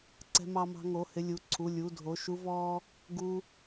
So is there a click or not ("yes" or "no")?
yes